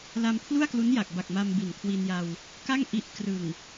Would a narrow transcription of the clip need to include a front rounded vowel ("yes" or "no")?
no